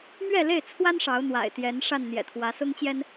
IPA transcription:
m ɥ ɛ˥˨ l e˥˨ ɪ̯ t͡sʰ w a˦ n ʂ ɑ˨˦ ʊ̯ n̪ w a̰˨˩ ɪ̯ t̪ j ɛ˨˦ n ʂ a˥˨ n n̪ j ɛ̰˨˩ t̪ʰ w ä˨˦ s ʊ˦ ŋ t͡ɕ j ɛ˦ n

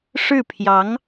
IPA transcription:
ʂ ɻ̩˥˩ pʰ j ɑ˧˥ ŋ

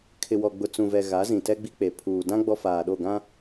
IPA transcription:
kʰ ɪ˨ w ɔ˨ ɡ͡b ʊ˨ t͡s ũ˨ v ɛ˨ ɣ a˨˦ z ĩ˨ t ɛ˦ ɡ͡b i˦ k͡p e˨ pʰ uː˨ d ã˦ ɡ͡b ɔ˦ f aː˨ ɗ o˦˨ ɡ ã˦

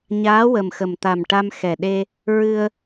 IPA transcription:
ɲ aː˧˥ w ə˨˩ m x ə˨˩ m t̪ a˨˩ m ʈ a˧ m x ɛ˨˩ ɗ e˧ | ɹ ɨ˧ ə̯

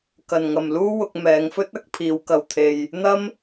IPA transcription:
k ɐ˨ n ŋ ɐ˨ m l uː˥ w ʊ˧ k̚ m ɛː˨˧ ŋ f ɵ˥ t̚ ɐ˨˥ k̚ pʰ iː˨˧ w k ɐ˧ w t̪ʰ e˧ j | n̪ ɐ˥ m

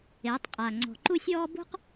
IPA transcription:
eː˨˦ tˤ qʼ aː˨ ŋ͡ǀ ɔ̤˨ ǃ u˦ sʲ ɔː˦ b ṳ˦ q

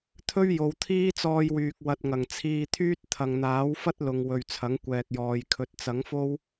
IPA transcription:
t̪ʰ ɵ˥ ɥ j o˨˧ w t̪ʰ iː˥ t͡s ɔː˧ j w yː˨ k̚ w ɐ˨ t̚ ŋ ɐ˨˩ ŋ t͡sʰ iː˧ t̪ʰ yː˥ t̚ t̪ʰ ɐ˨ ŋ n̪ aː˨˥ w f ɐ˥ t̚ l ʊ˨ ŋ w ɵ˨ ɥ t͡sʰ ɐ˨˥ ŋ kʷ ɛː˨ k̚ j ɔː˨ j kʰ ɵ˨ t̚ t͡s ɐ˨˥ ŋ f o˥ w

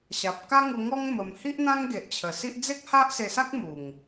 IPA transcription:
ɕ a˨ p̚ k a˦ ŋ u˧ ŋ ɔ˦ ŋ m ə˧ m h i˦ ʔ n̪ ã˦ ŋ ɡ e˨ ʔ t͡ɕʰ ə˨˩ s i˦ ʔ d͡z e˦ k̚ h a˦ ʔ s e˧ s a˦ k̚ m u˨˩ ŋ

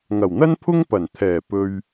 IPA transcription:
ŋ ɐ˨˩ w n̪ ɐ˥ n pʰ ʊ˥ ŋ p ɐ˨˩ n t̪ʰ ɛː˨˩ p ɵ˧ ɥ

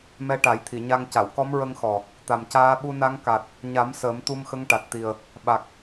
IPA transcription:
m ɛ˧ ʈ a˨˩˦ j t̪ʰ i˨˩˨ ɲ a˧ ŋ c a˨˩˨ w k ɔ˧˥ m ɹ ə˧ ŋ x ɔ˨˩ | t̪ a˨˩ m c aː˧˥ ɓ u˧ n a˧˥ ŋ k a˨˩ t̚ | ɲ a˨˩˦ m s əː˨˩˦ m t̪ u˧ m x ə˧˥ ŋ ʈ a˨˩ t̚ t̪ i˨˩ ə̯ | ɓ a˨˩ k̚

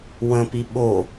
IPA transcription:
w ə̃ p i ɓ o

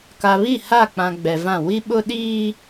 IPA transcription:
k a˨ β i˦˨ h a˦˨ k͡p ã˨ ɡ͡b ɛ˨ v ã˦˨ w i˦ ɓ ʊ˦ ɗ iː˦

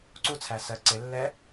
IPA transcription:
ǀ u t͡sʰ æ s ɜ ǀ ɪ lː ɛ

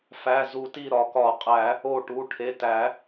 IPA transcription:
f æ˩˧˩ z u˨˩˦ t i˧˩ ɾ ɒ˨˩˦ k ɒ˨˩˦ qʼ æ˨˩˦ | o˧˩ ʈ u˩˧˩ ʈʰ e˩˧˩ t æ˨˩˦

